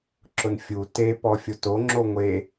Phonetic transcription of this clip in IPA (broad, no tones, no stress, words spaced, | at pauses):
ǁʊnfʲu te pɔfʲoto ŋ͡ǁoŋʷe